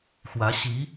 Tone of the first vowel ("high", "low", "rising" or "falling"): rising